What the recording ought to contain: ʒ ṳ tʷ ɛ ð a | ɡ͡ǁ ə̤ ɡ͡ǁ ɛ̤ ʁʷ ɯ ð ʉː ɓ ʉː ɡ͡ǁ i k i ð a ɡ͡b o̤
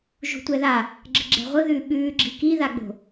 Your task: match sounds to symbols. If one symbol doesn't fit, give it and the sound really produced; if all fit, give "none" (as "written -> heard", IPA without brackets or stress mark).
none